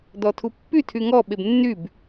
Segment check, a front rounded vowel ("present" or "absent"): present